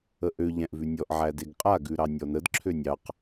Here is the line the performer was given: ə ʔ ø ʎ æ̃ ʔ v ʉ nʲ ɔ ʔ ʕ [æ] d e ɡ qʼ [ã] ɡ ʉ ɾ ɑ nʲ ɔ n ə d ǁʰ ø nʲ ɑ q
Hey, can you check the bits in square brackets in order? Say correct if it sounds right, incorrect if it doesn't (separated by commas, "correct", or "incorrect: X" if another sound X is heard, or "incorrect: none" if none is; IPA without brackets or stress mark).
correct, incorrect: a